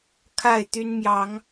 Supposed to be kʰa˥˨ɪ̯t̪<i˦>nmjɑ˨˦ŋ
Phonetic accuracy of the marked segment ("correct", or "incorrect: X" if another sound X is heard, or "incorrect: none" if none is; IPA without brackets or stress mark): incorrect: y˦